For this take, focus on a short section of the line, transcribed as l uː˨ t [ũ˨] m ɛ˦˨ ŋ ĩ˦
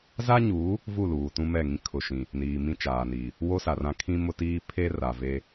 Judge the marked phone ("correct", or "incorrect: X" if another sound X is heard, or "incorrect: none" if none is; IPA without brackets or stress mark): incorrect: ũ˦